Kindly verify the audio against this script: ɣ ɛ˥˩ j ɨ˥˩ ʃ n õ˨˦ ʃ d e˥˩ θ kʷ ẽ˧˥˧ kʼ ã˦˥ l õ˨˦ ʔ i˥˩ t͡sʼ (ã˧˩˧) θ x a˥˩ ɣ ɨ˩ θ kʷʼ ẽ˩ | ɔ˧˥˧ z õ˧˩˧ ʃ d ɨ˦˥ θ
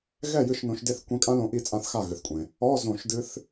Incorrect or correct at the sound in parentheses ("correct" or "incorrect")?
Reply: incorrect